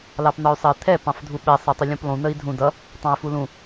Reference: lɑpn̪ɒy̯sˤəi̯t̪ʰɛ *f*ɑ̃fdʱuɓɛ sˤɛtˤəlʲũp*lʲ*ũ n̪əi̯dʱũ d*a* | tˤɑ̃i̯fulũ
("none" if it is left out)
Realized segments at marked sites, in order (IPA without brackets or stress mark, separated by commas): p, lˠ, ʌ